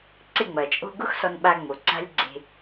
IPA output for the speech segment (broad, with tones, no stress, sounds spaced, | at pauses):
ǀ ɪ˦˨ ŋ͡m ɐ˨ t͡ʃʼ o̤˦ ɡ ʊ˦ x s ɔ˧ n ɓ a˧ ŋ͡m o˨ ǀ a̤˦ lʲ ɡ͡ǀ e̤˦